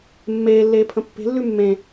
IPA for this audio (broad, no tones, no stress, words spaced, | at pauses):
mːeːlːeː pʰə̃pːe̤lːʉ mːẽ